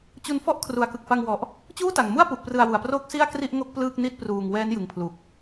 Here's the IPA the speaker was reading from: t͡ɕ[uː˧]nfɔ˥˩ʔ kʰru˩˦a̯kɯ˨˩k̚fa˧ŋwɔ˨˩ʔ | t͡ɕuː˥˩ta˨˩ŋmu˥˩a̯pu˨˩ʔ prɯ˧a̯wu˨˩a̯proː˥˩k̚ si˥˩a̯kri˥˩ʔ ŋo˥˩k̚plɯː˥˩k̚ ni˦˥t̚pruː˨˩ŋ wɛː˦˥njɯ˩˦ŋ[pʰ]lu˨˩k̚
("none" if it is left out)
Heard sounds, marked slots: u˧, pʰ

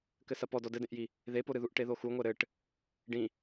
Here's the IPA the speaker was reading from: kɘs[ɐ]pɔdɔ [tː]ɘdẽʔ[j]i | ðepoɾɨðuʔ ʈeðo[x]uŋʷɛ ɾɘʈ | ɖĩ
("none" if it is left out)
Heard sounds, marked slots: ɐ, d, j, x

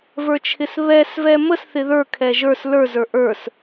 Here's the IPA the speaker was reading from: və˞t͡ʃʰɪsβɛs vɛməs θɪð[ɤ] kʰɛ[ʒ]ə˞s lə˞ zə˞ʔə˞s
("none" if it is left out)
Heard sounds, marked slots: ə˞, ʒ

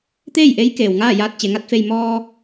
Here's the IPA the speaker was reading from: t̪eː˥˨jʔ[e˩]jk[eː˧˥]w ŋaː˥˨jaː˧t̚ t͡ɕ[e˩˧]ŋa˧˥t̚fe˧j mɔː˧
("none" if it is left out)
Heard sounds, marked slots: e˧˥, eː˩, e˩˧

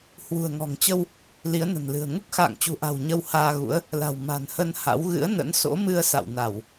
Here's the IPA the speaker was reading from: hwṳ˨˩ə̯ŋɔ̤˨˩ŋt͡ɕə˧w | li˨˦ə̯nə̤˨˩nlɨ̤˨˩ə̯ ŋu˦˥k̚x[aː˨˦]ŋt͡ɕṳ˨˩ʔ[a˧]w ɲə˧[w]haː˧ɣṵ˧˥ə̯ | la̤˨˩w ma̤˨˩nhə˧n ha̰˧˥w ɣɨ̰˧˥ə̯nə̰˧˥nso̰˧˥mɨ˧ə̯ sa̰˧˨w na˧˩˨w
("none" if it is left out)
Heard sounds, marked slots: a̰ː˧˨, a̤˨˩, w

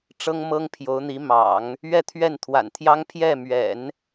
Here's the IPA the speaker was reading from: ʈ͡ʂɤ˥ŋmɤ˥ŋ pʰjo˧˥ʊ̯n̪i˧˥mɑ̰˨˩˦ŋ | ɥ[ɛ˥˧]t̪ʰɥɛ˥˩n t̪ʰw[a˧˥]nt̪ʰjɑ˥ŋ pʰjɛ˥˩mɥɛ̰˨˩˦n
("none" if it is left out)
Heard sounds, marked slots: ɛ˥˧, a̰˨˩

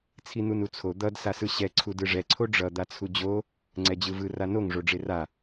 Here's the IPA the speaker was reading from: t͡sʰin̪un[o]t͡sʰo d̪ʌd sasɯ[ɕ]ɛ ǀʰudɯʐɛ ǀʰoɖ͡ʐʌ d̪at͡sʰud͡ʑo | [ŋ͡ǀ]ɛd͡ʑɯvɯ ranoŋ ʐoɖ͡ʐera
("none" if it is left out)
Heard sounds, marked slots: u, ɕ, ŋ͡ǀ

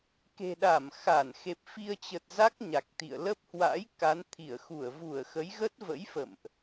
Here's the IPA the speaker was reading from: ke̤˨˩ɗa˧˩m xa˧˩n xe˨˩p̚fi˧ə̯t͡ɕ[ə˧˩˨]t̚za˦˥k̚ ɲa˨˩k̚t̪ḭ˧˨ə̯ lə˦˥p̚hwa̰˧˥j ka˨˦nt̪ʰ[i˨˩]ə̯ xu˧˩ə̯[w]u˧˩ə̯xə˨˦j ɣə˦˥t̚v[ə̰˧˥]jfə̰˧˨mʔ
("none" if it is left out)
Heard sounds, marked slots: ə˨˩, i˧˩, v, ə̰˧˥

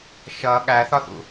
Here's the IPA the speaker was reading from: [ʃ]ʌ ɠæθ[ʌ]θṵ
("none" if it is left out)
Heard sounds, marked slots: ʃ, ɒ

